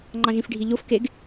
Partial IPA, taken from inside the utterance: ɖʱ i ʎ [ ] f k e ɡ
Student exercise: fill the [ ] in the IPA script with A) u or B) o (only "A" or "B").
B